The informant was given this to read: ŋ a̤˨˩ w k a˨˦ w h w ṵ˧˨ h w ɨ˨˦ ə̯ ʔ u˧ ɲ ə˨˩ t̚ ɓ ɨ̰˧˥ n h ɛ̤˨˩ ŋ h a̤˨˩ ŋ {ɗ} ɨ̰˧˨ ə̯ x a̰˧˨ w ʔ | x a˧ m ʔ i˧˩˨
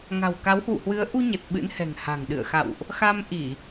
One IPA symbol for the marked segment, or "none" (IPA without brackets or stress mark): ɗ